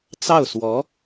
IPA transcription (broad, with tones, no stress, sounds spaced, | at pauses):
t͡s ɑ˥˩ ʊ̯ s w ɔ˧˥